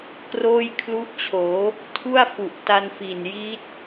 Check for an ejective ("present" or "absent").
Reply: absent